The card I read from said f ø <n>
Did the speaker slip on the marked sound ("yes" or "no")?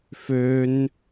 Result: no